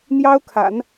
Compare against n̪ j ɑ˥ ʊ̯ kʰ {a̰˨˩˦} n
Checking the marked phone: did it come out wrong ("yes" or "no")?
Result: no